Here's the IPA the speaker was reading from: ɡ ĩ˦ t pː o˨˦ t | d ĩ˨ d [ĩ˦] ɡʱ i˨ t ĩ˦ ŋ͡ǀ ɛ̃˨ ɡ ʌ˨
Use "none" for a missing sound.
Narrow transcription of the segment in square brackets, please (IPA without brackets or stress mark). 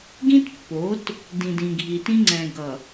ĩ˨